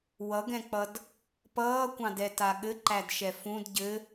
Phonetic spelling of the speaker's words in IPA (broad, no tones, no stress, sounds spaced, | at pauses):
w ʌ ɡ ɛ̃ k͡p ʌ d | p ʌː kʷ ɑ̃ d ɛ t a ɠ ɘ ǃ æ d ʃ ɛ f ũ d ɟ ɘ